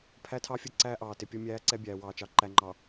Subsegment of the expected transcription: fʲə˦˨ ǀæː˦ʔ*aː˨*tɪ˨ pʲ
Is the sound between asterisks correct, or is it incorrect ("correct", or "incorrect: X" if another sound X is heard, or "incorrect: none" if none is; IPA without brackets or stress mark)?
incorrect: ɑː˨